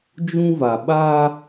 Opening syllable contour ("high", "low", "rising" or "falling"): high